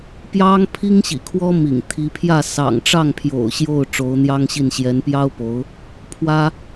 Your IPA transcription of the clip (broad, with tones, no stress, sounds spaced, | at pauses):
p j ɑ˥ ŋ pʰ i˥ ŋ ɕ ḭ˨˩ kʰ w ɔ˥ m ḭ˨˩ ŋ t̪ʰ i˧˥ pʰ j ä˥˩ s ɑ̰˨˩ ŋ ʈ͡ʂ ɑ˥˩ ŋ pʰ j o̰˨˩ ʊ̯ ɕ j o˥˩ ʊ̯ ʈ͡ʂ o˧˥ ʊ̯ n̪ j ɑ˥ ŋ ɕ i˥˩ n ɕ j ɛ˧˥ n p j ɑ˥ ʊ̯ p o˧˥ ʊ̯ | pʰ w ä˥